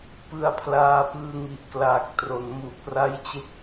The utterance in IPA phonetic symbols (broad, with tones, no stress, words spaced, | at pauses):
pɯ˧a̯pʰlaː˧ pɯː˧ŋi˨˩ʔklaː˨˩k̚ tro˩˦nmu˨˩ʔpra˦˥jt͡ɕe˦˥k̚